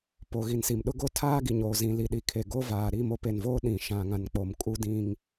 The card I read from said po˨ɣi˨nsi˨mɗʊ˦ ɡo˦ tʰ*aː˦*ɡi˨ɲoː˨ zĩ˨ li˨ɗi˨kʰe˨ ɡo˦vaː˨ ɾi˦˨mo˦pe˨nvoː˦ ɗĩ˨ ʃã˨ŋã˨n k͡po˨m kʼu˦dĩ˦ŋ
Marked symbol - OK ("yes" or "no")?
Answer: yes